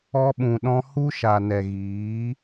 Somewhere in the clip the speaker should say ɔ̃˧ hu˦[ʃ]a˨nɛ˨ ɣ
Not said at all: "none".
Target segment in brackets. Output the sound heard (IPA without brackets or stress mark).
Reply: ʃ